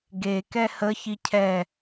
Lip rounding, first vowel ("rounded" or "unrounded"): unrounded